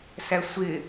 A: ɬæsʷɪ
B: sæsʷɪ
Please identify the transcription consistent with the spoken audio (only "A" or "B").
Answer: B